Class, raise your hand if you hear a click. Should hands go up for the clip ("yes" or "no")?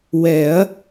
no